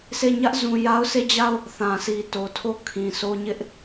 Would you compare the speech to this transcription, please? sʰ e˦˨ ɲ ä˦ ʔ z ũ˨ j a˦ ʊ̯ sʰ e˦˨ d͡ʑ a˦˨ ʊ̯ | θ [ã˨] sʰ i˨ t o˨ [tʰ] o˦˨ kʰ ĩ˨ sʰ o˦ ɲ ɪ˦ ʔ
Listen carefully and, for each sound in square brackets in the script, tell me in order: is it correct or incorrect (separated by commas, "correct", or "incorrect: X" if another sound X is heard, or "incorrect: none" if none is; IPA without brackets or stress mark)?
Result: correct, correct